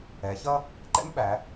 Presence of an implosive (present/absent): present